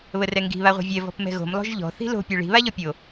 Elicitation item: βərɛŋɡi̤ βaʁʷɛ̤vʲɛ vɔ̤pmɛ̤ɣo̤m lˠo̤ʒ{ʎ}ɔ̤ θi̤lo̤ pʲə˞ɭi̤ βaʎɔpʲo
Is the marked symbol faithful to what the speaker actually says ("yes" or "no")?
yes